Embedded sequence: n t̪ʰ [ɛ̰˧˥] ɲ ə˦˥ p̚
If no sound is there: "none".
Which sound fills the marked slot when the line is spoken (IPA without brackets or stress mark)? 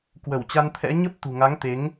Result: ɛ̰˧˥